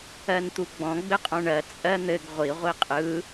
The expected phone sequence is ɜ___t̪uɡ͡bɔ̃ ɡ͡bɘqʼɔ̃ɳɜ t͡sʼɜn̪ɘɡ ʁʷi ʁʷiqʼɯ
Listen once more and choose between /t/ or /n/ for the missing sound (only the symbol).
n